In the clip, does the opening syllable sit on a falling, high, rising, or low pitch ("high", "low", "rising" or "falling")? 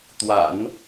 low